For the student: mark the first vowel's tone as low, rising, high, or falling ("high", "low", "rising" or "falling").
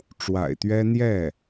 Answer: low